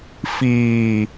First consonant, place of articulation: labial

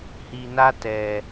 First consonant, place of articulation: glottal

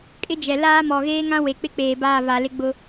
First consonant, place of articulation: velar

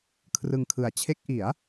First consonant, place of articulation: velar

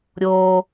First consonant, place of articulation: alveolar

